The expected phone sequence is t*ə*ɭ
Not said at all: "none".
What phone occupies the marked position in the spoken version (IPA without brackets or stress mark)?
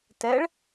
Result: ɛ